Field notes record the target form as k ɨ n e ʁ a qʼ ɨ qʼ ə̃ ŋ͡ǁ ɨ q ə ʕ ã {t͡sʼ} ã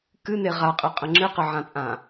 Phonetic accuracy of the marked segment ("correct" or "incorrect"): correct